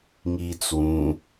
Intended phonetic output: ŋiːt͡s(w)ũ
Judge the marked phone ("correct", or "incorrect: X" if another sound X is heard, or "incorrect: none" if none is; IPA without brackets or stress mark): correct